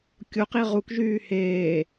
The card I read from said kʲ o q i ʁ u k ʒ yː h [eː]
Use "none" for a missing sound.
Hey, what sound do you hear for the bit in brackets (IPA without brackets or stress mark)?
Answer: eː